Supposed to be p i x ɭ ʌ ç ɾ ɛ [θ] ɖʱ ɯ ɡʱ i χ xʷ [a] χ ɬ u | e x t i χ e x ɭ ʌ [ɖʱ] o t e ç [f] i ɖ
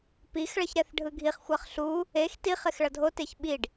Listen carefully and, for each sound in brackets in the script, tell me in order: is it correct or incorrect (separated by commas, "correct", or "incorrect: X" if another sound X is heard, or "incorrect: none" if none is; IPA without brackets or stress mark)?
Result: correct, correct, incorrect: dʱ, incorrect: ɓ